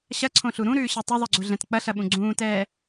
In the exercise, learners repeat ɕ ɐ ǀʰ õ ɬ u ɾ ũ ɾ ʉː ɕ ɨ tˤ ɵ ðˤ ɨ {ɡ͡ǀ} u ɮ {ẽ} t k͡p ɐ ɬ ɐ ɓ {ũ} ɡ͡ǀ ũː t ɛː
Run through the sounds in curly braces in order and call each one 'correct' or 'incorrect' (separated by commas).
correct, incorrect, correct